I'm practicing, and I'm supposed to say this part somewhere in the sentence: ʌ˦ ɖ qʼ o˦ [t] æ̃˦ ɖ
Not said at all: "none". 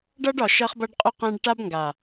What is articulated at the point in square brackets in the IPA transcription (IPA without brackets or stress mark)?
q